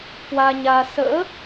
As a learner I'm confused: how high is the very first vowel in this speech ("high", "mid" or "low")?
low